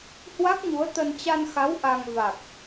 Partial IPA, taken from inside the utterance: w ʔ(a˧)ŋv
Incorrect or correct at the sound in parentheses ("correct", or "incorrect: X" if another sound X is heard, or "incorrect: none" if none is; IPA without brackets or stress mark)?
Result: correct